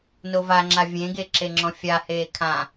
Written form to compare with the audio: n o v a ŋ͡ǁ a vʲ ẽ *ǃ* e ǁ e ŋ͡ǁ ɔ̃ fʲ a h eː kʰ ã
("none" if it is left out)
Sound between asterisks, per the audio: ɡ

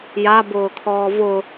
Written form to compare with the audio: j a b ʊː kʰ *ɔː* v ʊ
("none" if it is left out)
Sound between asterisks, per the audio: ɔː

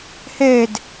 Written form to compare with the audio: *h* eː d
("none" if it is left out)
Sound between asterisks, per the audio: h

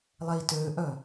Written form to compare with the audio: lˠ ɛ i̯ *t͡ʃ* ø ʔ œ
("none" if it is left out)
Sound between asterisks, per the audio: t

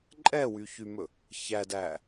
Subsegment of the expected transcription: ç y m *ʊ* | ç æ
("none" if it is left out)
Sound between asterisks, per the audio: ɵ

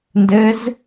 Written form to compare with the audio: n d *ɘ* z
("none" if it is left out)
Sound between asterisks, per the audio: ɘ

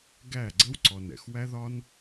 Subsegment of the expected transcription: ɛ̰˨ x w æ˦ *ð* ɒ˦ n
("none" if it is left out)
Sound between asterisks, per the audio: ð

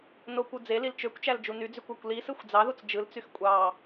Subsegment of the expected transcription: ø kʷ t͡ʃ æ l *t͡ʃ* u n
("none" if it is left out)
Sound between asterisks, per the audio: d͡ʒ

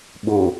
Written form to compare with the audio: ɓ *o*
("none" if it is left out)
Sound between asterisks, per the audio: o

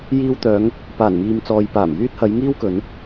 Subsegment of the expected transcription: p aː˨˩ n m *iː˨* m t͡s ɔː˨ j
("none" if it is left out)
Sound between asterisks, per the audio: iː˨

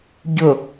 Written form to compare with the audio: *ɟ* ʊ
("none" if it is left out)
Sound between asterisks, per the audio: ɟ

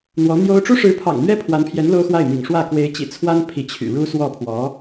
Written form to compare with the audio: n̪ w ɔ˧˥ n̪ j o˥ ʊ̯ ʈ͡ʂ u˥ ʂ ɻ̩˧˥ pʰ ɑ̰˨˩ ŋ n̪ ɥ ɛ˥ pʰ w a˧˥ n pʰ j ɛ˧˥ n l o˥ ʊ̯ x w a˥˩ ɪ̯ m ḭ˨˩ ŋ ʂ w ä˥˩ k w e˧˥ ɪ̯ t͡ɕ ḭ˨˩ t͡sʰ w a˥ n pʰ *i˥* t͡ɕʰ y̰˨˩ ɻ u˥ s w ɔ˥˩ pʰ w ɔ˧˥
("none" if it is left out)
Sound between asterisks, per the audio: i˧˥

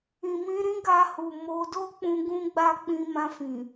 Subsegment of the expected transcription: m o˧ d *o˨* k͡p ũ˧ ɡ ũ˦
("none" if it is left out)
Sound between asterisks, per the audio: o˦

